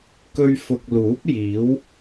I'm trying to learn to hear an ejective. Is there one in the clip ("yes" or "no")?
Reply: no